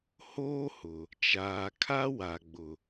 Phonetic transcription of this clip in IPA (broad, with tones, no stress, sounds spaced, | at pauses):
h oː˦ h ʊ˨ | t͡ʃ aː˨ kʰ a˦ w a˨ ɡ͡b ʊ˨